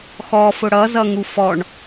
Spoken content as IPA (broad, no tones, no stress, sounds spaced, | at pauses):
x ɔ f ʊ ɽ ʌ z ʌ ŋ u f ɔ ɳ